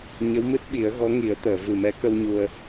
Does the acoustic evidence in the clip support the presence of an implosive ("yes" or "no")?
yes